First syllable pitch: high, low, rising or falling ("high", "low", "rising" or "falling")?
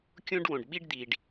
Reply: high